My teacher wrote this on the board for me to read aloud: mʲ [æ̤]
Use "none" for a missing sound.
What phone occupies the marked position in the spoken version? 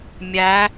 æ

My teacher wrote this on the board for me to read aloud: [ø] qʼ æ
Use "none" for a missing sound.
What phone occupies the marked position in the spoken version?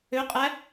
ø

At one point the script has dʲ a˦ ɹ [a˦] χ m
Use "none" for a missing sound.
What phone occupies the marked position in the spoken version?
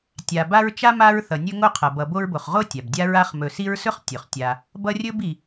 a˦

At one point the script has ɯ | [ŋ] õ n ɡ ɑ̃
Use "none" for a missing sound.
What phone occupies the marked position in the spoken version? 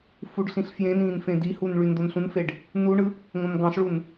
ŋ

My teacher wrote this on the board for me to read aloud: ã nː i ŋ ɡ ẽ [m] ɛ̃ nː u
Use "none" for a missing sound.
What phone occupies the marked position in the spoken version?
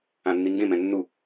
m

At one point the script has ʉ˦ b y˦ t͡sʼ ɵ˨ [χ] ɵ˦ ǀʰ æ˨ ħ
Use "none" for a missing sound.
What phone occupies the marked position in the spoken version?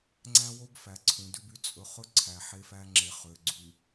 χ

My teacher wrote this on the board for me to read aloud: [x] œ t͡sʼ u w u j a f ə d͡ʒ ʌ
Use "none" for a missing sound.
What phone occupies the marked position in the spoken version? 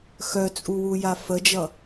x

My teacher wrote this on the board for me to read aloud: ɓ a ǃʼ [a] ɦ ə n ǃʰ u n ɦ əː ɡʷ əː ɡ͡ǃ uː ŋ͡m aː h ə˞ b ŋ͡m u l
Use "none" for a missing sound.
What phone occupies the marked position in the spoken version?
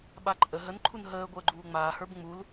ə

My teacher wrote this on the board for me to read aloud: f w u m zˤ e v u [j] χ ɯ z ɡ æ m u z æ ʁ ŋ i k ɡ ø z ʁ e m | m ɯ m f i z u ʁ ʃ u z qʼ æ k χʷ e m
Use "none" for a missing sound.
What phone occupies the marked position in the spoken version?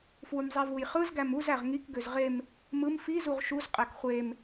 j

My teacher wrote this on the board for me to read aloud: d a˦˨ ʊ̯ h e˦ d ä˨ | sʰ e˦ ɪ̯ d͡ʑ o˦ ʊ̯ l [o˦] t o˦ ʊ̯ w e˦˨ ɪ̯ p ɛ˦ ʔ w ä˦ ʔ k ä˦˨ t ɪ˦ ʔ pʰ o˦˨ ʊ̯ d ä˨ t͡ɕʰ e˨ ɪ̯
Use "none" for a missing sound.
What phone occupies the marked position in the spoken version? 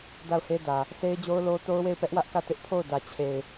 o˦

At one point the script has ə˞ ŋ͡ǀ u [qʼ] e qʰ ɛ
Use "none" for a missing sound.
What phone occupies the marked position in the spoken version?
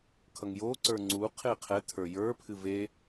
qʰ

